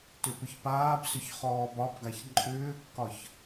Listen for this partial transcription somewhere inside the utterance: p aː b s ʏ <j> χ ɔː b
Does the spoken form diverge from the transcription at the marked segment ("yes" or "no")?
yes